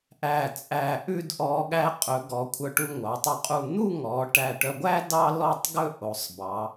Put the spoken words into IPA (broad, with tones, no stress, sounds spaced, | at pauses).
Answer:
ʔ æ˧˩ t͡sʼ æ˧˩ ʔ ʉ˥˧ d ʔ ɔ˧ ɠ æ˧ qʼ ɵ˩˧ ɡ ɔ˩˧ kʷʰ œ˧ ʈ u˧ ŋʷ ɑ˩˧ tˤ u˧ qʼ u˧˩ n̪ u˥˧ ŋ ɔ˩˧ ʈ æ˧˩ ʈ œ˧ ɡʷ æ˥ d ɑ˥ l ɔ˥˧ tˤ ɡ ɵ˥˧ ʔ o˩˧ sˤ b ɑ˩˧